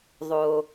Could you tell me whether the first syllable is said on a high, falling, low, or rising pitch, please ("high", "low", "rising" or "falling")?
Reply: low